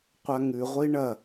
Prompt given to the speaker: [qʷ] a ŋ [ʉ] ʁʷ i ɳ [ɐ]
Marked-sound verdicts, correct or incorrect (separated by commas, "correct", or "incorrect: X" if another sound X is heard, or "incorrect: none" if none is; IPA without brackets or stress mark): correct, correct, correct